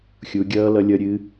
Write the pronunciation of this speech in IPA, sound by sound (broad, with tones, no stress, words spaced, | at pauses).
xʲu˨˦ɡʲʌː˦˥ lʌ˦˥lʲʌ˦˥ɾʲɨ˦˥